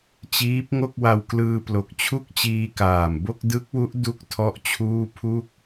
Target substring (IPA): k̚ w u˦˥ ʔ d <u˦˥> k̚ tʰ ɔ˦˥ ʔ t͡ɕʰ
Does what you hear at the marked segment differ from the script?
no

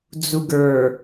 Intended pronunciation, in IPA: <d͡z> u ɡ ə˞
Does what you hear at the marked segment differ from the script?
no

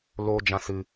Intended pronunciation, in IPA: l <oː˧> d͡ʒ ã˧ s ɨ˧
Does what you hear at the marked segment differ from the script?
no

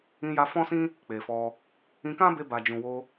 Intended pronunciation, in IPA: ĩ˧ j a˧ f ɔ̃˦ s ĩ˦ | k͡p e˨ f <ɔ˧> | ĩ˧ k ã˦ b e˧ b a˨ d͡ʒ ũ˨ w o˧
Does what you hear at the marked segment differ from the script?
no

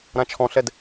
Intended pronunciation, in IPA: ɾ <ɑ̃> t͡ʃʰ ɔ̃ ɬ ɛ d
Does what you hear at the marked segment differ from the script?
yes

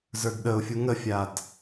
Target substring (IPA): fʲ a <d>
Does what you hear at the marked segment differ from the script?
no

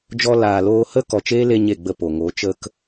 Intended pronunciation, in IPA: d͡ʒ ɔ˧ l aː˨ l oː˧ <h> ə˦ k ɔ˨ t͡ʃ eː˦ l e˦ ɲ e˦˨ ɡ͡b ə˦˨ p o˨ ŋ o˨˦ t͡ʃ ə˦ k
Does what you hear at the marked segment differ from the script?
no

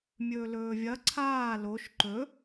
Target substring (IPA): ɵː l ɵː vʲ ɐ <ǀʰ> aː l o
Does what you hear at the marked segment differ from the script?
no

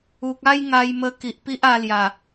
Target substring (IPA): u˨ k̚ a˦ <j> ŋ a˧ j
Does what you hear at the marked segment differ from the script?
no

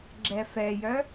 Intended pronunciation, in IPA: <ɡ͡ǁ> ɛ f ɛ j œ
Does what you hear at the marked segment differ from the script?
no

